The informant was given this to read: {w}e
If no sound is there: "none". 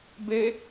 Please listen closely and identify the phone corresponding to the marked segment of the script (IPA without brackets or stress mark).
b